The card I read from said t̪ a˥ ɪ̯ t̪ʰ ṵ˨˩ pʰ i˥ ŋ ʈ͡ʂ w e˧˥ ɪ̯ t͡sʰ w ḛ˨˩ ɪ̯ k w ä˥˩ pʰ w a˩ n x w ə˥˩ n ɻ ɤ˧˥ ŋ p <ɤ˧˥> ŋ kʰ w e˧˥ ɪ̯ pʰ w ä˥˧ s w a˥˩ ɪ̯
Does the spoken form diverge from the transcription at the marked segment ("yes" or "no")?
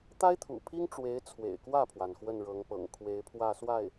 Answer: yes